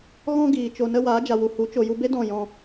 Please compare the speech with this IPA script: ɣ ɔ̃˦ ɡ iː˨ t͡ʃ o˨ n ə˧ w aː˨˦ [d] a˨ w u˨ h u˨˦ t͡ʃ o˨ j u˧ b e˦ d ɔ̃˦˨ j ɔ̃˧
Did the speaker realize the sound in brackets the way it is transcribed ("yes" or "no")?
no